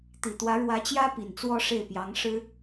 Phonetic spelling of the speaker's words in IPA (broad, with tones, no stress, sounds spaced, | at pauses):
t̪ i˨˩ t̪ w ä˧˥ ɻ w ä˧˥ t͡ɕ j ä˥ p i˨˩ n t͡s w ɔ˥ ʂ e˥˩ ɪ̯ p j ɑ˧˥ ŋ ʂ ɻ̩˥